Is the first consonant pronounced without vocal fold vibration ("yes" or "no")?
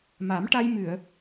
no